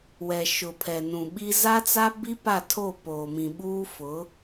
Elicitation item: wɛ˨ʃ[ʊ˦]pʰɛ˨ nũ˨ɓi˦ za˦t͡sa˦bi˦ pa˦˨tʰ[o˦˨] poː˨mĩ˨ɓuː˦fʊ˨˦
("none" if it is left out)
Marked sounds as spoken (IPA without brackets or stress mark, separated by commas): ʊ˨, o˦˨